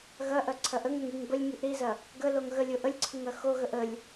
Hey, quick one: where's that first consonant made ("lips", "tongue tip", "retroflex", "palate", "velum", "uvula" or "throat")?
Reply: velum